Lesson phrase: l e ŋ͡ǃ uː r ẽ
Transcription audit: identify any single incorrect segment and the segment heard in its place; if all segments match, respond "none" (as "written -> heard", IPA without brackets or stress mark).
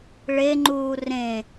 l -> ɭ